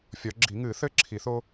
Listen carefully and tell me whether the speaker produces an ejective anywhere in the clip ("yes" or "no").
no